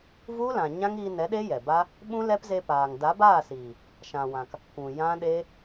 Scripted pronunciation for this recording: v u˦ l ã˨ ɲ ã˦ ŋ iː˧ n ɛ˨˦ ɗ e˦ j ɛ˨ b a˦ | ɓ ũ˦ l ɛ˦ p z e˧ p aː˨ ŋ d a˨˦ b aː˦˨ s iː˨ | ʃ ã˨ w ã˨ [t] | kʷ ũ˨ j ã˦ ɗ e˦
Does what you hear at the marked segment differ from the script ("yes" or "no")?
yes